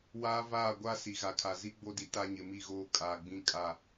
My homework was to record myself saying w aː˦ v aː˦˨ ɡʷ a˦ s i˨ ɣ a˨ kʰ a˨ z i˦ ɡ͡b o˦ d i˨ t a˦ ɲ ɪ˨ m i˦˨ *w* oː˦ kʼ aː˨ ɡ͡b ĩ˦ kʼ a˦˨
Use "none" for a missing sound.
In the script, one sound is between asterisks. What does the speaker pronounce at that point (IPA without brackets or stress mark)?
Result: ɣ